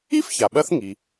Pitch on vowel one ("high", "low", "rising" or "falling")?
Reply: high